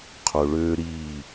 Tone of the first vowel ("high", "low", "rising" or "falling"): low